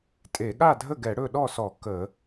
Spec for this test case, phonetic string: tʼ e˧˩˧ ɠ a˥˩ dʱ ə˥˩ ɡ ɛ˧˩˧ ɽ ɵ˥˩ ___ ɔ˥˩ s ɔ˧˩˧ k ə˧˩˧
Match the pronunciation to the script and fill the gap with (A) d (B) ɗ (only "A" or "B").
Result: B